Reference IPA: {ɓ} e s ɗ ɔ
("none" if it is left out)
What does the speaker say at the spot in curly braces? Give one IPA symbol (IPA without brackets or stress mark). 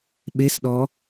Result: ɓ